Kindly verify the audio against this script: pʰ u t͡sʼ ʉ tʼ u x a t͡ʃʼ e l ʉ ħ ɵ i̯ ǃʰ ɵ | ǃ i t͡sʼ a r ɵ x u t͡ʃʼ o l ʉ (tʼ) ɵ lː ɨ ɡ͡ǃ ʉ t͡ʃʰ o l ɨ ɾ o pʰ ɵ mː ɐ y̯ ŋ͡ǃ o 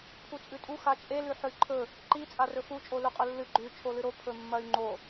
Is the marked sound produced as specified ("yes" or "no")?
no